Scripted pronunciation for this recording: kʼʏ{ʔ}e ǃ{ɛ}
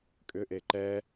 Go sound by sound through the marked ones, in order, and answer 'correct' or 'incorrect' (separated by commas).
correct, correct